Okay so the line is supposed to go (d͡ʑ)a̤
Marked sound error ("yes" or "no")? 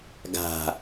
yes